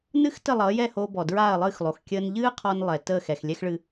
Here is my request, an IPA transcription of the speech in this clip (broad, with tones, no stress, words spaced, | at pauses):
nɨ˥x tə˥˩lˠʌː˩˥jɛ˥˩hoː˧ bɔ˩dɹaː˥˩ɐ̯lˠɨː˥˩xlˠo˩x kʲəː˧nʎɨː˥qʰɔ˧n lˠɛ˩ təː˥˩xɛ˩x lʲɛ˥xɭɨ˧